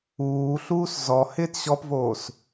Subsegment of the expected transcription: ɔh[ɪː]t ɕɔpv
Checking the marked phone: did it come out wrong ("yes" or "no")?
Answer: no